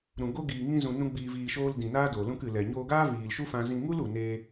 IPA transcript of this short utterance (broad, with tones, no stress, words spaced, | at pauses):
ɾũ˨ɡo˦ ɡiː˨ŋĩ˧zũ˨ nũ˦ɡ͡biː˧viː˧ʃoː˦l dĩ˨naː˦ do˨lũ˧kɨ˨lɛ˨ ɲoː˧ɡaː˦viː˨lʃu˦ fã˦ zĩ˧ŋu˦lu˨neː˧